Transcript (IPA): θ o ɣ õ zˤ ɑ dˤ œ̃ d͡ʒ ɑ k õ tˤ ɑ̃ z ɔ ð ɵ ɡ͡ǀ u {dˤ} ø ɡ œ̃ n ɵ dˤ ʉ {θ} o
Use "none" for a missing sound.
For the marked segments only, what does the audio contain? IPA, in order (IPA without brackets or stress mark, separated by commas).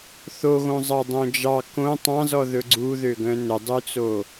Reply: ð, t͡s